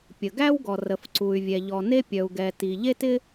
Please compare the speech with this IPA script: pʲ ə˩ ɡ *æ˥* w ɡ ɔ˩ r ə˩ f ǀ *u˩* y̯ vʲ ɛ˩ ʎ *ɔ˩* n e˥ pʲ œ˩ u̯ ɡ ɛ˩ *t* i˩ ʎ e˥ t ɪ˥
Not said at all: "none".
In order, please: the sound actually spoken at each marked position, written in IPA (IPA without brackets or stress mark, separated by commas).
æ˥, u˩, ɔ˩, t